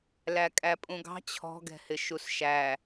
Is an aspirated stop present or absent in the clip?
present